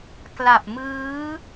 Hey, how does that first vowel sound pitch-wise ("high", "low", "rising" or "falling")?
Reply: low